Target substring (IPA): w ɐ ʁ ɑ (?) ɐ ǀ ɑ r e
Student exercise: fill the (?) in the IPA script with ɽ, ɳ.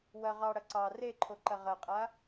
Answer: ɽ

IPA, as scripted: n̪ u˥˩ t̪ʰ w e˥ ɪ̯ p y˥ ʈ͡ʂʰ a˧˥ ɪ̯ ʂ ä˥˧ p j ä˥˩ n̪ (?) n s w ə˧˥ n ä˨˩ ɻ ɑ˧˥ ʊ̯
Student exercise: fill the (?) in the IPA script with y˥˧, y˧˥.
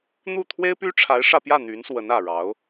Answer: y˧˥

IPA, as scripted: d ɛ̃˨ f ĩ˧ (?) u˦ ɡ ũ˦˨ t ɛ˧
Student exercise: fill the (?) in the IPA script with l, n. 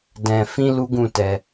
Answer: l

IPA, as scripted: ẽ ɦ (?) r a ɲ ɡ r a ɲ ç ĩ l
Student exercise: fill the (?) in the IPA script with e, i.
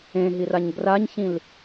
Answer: i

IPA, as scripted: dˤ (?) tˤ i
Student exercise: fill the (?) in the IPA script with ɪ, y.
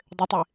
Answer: ɪ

